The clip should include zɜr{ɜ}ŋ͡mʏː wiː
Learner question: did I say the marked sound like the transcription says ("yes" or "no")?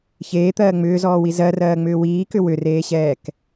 no